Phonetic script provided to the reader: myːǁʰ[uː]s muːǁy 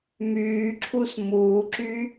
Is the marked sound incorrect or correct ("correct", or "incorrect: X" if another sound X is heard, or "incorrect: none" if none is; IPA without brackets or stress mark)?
incorrect: u